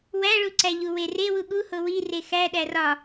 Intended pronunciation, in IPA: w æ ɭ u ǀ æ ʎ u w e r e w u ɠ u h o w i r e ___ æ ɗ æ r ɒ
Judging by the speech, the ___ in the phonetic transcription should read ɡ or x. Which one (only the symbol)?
x